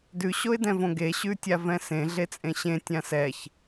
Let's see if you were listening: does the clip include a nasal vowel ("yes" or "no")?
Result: yes